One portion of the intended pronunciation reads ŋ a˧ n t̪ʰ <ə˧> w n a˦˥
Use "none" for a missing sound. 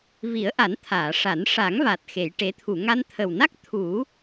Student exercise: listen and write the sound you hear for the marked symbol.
ə˨˩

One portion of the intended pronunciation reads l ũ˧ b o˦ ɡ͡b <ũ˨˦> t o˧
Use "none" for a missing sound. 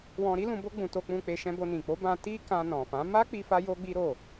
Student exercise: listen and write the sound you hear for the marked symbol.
ũ˧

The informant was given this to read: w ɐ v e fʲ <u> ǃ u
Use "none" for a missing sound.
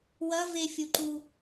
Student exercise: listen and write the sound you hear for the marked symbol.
u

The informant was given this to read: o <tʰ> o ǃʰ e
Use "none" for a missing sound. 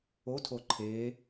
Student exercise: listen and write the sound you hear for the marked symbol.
tʰ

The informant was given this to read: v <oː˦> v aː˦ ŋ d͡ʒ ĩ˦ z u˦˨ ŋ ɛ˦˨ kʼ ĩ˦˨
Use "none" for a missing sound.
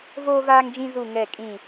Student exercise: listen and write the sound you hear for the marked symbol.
oː˦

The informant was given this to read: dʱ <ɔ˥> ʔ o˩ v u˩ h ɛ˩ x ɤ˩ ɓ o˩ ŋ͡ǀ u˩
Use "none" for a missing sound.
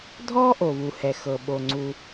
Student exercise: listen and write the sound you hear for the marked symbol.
ɔ˥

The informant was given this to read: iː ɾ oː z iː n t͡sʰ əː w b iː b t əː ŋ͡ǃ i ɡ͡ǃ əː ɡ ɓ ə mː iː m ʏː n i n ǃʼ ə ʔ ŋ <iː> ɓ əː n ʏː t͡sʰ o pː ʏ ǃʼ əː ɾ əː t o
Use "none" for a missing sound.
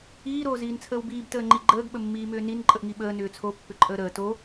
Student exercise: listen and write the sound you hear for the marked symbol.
i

